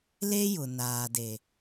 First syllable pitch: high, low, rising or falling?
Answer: high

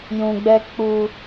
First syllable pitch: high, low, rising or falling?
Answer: low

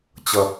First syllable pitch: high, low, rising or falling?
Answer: low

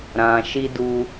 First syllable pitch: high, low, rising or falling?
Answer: low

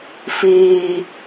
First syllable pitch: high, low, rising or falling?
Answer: low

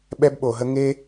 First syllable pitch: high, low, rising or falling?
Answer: high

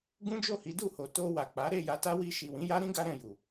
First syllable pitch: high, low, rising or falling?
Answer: high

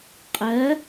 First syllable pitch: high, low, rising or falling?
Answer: rising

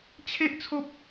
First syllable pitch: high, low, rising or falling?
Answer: high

